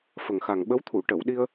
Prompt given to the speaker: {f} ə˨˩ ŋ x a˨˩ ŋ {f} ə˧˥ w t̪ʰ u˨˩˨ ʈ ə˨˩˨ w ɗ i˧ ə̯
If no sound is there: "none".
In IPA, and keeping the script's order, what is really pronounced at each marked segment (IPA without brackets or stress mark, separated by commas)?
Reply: f, ɓ